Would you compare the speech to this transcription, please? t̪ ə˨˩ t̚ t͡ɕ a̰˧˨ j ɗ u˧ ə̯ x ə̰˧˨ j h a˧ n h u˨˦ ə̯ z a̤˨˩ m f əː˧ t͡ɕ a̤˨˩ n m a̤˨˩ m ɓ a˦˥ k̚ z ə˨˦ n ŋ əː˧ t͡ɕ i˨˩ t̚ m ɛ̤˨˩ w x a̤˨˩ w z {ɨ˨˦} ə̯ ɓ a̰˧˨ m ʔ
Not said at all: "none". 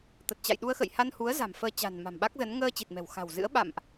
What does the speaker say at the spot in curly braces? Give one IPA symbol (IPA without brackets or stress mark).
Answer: ɨ̰˧˥